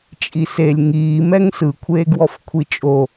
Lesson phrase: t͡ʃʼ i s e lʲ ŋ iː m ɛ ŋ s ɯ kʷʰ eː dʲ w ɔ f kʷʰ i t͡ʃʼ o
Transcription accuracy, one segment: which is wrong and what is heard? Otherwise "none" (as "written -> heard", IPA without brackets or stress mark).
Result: dʲ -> ɡ